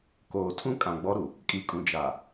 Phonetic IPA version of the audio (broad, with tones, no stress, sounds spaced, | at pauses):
k oː˨ tʰ ũ˦ kʼ ã˨ ɡ͡b ɔ˦ ɾ u˨ | kʼ i˨˦ kʼ ũ˨ d͡ʒ a˨